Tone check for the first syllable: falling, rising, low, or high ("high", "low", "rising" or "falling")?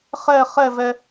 falling